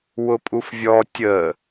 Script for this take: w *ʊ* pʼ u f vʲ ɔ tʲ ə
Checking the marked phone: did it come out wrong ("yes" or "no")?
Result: no